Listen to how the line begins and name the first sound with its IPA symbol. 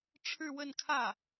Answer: ʈ͡ʂʰ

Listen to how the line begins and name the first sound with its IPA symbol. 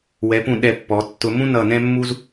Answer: w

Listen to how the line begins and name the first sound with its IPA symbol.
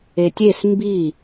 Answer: e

